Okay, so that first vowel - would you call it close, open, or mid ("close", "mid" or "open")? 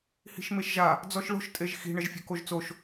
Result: close